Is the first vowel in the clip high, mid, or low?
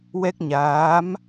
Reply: mid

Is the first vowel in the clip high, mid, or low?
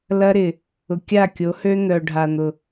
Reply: low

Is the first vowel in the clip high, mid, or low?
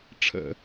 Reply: mid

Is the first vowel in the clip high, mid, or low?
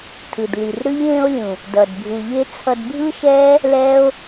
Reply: high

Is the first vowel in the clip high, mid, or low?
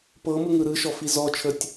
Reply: mid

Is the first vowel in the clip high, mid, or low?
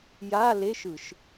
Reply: low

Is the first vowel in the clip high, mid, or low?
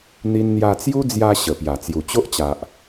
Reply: high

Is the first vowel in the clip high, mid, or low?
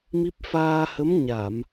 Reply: high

